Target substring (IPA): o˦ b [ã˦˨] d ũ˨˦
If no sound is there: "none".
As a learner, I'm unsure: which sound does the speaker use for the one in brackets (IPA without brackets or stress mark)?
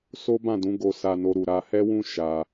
ã˦˨